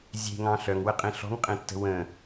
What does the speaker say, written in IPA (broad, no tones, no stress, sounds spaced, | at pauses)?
zʲ e̤ ŋ ɑ̃ ɬ œ ŋ w ə qʼ ẽ ɬ ɔ̤ ŋ qʼ ẽ tː ə̤ w ə̃